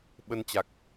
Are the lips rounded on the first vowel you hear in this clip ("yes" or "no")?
no